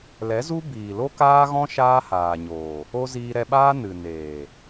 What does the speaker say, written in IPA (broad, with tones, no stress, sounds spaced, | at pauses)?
l ɛ˨˦ z u˦ b iː˨ l o˦ k aː˦ ɣ ɔ̃˦ ʃ aː˦ h aː˨ ɲ oː˨ | o˦ z iː˧ ɾ ɛ˧ ɓ aː˦ n ɨ˨ n eː˨